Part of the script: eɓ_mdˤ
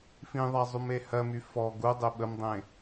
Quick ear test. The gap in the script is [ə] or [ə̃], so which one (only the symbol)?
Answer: ə